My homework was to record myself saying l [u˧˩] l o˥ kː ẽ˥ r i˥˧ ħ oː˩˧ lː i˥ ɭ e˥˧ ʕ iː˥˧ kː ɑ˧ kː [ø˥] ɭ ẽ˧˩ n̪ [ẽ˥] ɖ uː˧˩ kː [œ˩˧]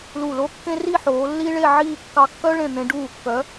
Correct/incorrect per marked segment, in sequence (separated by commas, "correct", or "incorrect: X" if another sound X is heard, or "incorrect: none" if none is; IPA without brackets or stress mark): correct, incorrect: œ˥, incorrect: ẽ˧, correct